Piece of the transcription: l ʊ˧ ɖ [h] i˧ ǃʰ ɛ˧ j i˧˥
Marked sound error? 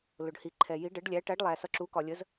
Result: no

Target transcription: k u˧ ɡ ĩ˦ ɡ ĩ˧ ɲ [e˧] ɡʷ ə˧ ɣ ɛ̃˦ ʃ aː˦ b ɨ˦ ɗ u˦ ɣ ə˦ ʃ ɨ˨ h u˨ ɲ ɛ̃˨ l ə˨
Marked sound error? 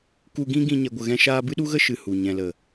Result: yes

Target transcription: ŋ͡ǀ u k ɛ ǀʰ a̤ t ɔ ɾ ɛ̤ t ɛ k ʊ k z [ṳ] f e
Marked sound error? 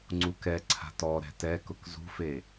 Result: no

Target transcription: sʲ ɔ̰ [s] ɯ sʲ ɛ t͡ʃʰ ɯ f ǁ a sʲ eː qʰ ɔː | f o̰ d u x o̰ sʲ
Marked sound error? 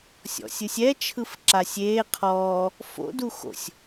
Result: yes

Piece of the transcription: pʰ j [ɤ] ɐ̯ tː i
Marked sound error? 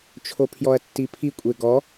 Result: yes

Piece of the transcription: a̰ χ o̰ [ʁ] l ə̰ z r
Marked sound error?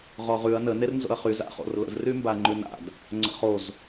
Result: yes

